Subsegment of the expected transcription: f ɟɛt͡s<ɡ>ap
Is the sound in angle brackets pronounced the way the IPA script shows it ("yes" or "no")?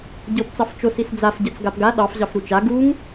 yes